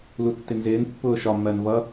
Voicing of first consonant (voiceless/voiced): voiced